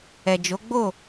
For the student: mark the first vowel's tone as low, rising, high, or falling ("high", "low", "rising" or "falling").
low